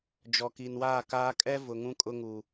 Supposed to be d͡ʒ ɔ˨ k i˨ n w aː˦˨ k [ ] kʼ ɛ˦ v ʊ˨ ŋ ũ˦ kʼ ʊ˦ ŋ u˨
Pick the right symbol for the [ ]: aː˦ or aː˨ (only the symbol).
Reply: aː˦